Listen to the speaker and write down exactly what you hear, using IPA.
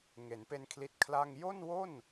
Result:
ŋ e˩˦ n p e˧ n kʰ l i˦˥ t̚ kʰ l a˥˩ ŋ j o˥˩ n w o˥˩ n

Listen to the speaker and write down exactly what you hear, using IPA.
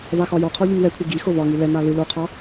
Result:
v a x ɒ j ɔ qʰ ɔ ʎ i ŋ w ɛ kʷʰ ɨ ɡ i x o v ɒ ŋ i l ɛ n a l ɨ l o qʰ ɒ

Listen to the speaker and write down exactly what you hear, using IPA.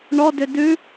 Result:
ɳ ɔ d ʏ d ʉ

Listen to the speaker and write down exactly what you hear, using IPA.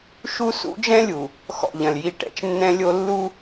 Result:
ʃ u˦ s ṵ˦ d͡ʒ ɛ̃˦ lʲ u˨ | x ɔ̰˦˨ ʎ ɐ̃˨ l j i˦˨ ʈ ɛ̰˨ t͡ʃ nː ɛ̃˦ lʲ o˦ lː u˦

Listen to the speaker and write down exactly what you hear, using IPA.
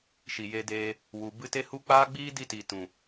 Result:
ʃ i˨ j e˧ d eː˧ | w u˨ b ɨ˧ t e˦ h u˦ k͡p aː˦ ɡ͡b iː˦ d i˧ t i˨ t ũ˨

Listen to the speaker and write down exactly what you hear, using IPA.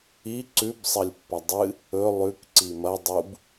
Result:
i ǀ ʉ b sˤ ɐ lʲ pː ɐ dˤ ɨ | ɵ lˠ ʉ k ǀ i m ɐ dˤ u b

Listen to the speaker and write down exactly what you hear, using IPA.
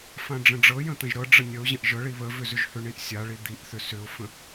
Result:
f ã ɖ͡ʐ ə̃ ɖ͡ʐ ɤ j ə̃ t̪ ə̃ ʒ ɾ ɤ ɖ͡ʐ ə nʲ ə ʊ̯ ʑ ə̃ ʔ ʒ ɤ ɭ i β ə v ʏ z ʏ ʒ h ʏ ɳ i ʔ sʲ a ɭ i d̪ i ʔ θ ʏ s ʏ ʊ̯ f ə̃

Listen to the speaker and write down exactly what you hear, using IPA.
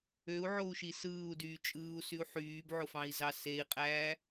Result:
ø u̯ ʕ o u̯ ʃ i s ɯː u̯ d yː t͡ʃʼ ɯː u̯ s y u̯ ħ yː b ʕ o f ɑ̃ i̯ z ɑ s e i̯ qʼ æː

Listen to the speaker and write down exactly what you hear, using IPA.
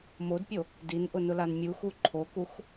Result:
m o d pʲ o | d i n ʔ ʊ n ʊ l a n mʲ u x u ǃʰ o k u x

